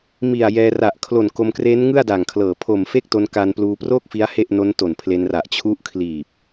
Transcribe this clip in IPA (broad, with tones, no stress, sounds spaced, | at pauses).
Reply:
m i˨˩ a̯ j ɛː˧ r a˨˩ ʔ kʰ l o˨˩ n k o˧ m k r e˦˥ n ŋ ɯ˥˩ a̯ d a˨˩ ŋ kʰ l ɤː˨˩ pʰ o˨˩ m f e˥˩ k̚ t o˧ n k a˧ n p l uː˧ p r o˥˩ k̚ f i˦˥ a̯ h e˥˩ ʔ n o˦˥ n t o˨˩ n pʰ l e˧ n r a˨˩ ʔ t͡ɕʰ u˦˥ ʔ kʰ l iː˨˩ p̚